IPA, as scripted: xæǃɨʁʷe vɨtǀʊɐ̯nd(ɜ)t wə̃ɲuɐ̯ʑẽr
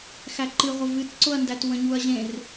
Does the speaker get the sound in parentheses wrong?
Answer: yes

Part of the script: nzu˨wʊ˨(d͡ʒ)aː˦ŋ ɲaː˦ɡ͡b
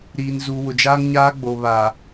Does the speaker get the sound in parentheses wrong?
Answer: no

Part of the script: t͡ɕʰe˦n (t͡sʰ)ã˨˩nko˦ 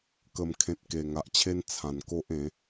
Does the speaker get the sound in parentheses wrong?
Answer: no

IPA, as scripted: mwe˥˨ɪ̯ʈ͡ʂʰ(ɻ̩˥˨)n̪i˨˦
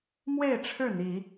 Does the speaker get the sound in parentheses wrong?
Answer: no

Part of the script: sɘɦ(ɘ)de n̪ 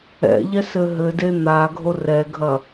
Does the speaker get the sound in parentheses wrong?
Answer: no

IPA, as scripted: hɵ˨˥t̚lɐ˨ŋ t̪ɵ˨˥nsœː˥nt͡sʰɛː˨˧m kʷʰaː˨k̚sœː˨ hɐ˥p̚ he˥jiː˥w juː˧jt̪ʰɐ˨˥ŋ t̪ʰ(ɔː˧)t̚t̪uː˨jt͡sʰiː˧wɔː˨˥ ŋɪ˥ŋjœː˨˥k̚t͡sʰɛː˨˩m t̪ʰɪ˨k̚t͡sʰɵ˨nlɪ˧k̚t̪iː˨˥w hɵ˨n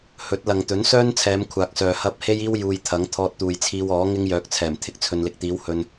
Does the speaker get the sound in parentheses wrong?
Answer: no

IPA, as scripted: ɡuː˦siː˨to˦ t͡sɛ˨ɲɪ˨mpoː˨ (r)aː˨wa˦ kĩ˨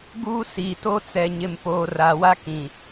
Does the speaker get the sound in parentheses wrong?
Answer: no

